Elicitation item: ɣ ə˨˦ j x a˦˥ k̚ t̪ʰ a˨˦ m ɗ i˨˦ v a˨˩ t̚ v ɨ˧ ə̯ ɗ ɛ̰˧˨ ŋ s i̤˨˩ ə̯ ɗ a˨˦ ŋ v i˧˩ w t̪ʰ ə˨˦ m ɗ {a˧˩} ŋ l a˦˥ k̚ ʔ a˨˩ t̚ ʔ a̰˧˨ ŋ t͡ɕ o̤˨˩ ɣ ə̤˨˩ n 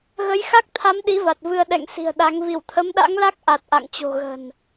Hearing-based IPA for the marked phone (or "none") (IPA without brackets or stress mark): a̰˧˥